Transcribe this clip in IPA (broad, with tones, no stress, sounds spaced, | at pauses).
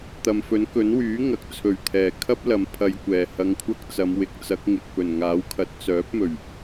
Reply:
t̪ ɐ˨ m f ɵ˨˥ n k ɵ˨˥ n w yː˨˥ ŋ ɐ˨ k̚ t͡sʰ ɵ˨˩ ɥ t̪ʰ ɛː˨˩ kʰ ɐ˥ p̚ l ɐ˨ m pʰ ɐ˧ j kʷ ɛː˨˩ h ɐ˧ ŋ kʷʰ ɐ˥ k̚ t͡s ɐ˨˧ m w ɪ˨˥ k̚ t͡s ɐ˨˥ k̚ ŋ ɪ˨ k̚ p ɵ˨˩ n ŋ aː˨˥ w kʰ ɐ˨˥ t̚ t͡s œː˨˥ p̚ m ɵ˨˩ ɥ